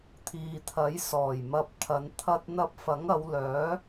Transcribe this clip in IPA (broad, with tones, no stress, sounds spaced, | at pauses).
t̪ʰ iː˨ t̪ʰ ɐ˨˥ j s ɔː˨˩ j m ɐ˨ p̚ t̪ʰ ɐ˨˧ n t̪ʰ ɐ˧ t̚ n̪ ɐ˧ p̚ f ɐ˨˥ ŋ ɐ˨˧ w l œː˨˥